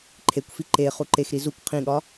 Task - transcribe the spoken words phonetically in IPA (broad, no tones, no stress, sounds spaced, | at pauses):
ǃʰ e kʷ f i ǃ e χ u ǃ e x ɾ i z u kʷ qʰ ĩ ɠ ɒ